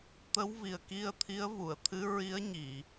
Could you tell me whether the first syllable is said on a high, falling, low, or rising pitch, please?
rising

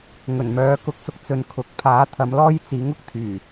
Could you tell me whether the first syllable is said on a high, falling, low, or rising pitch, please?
low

